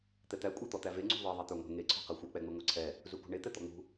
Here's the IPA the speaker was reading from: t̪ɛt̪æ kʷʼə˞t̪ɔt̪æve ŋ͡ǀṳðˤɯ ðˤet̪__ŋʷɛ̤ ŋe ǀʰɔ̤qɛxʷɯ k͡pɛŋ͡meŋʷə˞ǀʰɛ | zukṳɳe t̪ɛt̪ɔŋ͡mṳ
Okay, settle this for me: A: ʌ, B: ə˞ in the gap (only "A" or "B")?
B